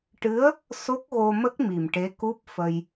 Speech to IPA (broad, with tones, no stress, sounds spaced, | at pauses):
ʈ ɨ˧˥ ə̯ | s o˦˥ k̚ ɣ o˧ m ə˦˥ k̚ m i˨˩ m ʈ e˧˥ k u˦˥ p̚ f ə˧ j